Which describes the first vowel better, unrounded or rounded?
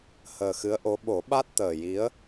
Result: unrounded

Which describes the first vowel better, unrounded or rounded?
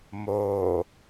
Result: rounded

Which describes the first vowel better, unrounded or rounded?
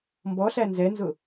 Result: rounded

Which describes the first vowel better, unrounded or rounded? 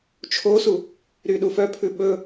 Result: rounded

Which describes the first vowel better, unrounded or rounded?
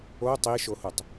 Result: rounded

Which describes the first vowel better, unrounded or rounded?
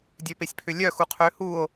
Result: rounded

